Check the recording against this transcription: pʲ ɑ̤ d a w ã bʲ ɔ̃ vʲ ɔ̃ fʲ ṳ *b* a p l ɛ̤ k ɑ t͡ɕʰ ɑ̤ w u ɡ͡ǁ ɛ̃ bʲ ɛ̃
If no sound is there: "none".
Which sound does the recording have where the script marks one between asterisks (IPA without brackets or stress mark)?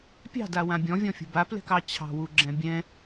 b